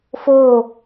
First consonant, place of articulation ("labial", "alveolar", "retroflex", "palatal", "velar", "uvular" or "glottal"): labial